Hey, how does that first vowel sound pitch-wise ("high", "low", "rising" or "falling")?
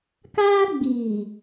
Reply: high